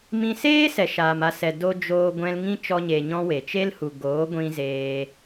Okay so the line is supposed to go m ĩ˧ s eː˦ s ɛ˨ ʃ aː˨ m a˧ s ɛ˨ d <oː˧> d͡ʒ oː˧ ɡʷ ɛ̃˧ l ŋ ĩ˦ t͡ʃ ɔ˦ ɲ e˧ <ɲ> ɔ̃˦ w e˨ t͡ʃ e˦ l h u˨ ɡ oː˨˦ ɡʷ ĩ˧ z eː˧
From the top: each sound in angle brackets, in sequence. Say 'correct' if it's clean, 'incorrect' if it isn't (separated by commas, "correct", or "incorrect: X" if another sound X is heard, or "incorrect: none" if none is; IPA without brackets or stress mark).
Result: incorrect: o˧, correct